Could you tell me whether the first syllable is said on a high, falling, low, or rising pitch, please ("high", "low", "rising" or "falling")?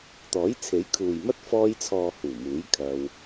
rising